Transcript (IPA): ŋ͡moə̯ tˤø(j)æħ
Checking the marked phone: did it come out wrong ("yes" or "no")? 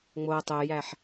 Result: no